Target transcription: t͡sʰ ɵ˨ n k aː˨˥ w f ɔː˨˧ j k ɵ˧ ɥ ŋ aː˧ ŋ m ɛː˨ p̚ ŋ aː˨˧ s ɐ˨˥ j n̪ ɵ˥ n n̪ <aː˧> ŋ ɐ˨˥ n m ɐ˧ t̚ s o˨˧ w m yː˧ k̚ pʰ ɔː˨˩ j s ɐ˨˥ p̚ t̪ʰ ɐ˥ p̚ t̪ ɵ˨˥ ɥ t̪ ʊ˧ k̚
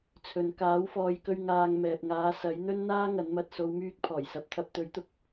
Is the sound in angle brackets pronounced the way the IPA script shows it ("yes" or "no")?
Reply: no